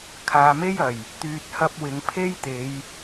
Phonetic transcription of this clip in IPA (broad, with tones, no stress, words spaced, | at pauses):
kʰaː˨me˥jɐ˨˩j | t̪yː˨t̚hɐ˧p̚wɪ˨˧ŋ pʰe˥jt̪e˨˧j